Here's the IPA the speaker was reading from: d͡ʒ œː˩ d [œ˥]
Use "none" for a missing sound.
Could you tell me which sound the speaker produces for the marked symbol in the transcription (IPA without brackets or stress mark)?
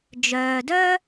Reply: œ˥